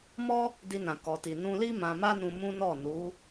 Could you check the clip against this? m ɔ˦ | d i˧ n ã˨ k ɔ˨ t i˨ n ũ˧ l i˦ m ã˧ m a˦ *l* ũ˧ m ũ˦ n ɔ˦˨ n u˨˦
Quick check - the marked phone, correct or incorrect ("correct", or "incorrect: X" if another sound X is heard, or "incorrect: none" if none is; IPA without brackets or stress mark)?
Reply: incorrect: n